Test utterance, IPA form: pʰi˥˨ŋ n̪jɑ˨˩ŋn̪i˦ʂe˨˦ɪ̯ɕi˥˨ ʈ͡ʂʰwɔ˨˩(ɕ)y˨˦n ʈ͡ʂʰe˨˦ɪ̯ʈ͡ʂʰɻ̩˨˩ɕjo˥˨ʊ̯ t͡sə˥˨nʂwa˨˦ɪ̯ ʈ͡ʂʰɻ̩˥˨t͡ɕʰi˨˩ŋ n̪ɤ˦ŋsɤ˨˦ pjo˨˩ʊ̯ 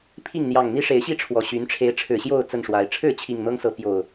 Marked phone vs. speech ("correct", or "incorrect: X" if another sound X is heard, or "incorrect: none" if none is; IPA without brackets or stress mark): correct